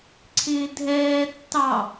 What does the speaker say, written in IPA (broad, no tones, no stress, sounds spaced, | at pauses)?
ǀʰ ɪː dʱ ɛː tː ɑ